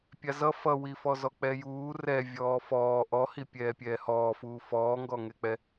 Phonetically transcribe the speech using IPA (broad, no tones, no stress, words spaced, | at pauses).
pʲazʌ fʌwifɔ zɔk͡pɛjuː rɛ vʲɔːfɔː ʔɔhi pʲɛːpʲɛːhɔːfuː fɔːŋɡɔŋɛk͡pɛ